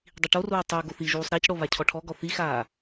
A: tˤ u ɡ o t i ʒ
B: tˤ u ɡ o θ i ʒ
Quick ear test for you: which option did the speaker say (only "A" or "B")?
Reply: B